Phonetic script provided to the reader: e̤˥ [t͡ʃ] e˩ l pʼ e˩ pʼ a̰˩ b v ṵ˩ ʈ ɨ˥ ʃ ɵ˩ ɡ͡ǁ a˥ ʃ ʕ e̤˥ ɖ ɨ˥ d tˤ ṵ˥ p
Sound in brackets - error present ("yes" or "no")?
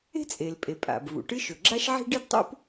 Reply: yes